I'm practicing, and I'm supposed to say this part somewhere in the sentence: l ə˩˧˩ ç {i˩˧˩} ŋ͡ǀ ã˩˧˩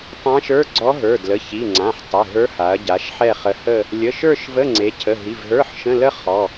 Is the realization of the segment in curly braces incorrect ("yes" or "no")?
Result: no